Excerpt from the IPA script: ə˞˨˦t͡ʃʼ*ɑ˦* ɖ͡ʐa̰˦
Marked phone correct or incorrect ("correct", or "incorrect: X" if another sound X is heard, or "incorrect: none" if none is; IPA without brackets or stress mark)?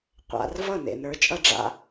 incorrect: ʌ˦